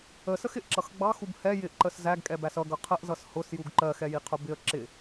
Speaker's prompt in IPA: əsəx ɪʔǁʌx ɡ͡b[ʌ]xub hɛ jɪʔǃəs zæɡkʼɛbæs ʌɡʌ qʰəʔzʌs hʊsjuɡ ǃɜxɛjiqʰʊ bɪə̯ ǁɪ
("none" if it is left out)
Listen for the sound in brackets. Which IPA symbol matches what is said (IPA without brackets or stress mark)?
ɑ